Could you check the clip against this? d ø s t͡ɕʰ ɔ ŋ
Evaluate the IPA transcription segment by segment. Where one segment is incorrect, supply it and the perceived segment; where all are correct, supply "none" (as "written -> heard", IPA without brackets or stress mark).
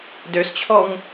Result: none